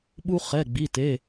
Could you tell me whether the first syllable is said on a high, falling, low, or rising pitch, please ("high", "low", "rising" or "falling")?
high